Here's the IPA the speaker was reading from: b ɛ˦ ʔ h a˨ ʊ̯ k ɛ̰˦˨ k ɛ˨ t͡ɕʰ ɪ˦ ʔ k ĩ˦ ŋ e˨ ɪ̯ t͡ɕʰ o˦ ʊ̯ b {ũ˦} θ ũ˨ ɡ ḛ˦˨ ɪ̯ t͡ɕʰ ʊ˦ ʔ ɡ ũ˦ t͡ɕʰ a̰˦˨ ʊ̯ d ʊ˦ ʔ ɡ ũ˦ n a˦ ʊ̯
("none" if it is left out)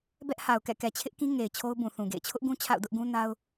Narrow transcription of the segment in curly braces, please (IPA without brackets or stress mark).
ũ˨